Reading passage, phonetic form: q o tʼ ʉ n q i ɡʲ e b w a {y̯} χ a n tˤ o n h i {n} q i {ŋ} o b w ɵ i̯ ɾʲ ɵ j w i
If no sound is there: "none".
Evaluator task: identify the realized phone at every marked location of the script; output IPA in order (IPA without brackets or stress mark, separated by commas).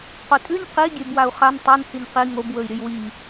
u̯, n, ŋ